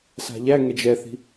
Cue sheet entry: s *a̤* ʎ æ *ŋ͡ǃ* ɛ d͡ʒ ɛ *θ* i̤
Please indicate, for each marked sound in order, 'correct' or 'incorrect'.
correct, incorrect: ŋ, correct

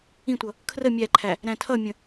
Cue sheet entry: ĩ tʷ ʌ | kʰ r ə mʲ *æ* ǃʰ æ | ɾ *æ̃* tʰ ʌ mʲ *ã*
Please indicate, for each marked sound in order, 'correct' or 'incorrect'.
correct, correct, incorrect: ə̃

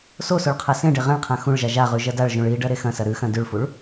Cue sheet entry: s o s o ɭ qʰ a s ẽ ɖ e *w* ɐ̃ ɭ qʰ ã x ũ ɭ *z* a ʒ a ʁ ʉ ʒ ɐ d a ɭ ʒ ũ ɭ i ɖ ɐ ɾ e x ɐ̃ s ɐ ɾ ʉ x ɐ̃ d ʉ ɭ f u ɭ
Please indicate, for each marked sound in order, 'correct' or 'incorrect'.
incorrect: ʁ, incorrect: ʒ

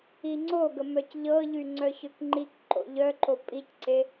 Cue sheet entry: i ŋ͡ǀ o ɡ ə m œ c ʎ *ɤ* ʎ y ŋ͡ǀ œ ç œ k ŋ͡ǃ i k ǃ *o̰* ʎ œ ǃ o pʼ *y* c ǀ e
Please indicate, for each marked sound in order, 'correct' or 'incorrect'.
correct, correct, incorrect: i

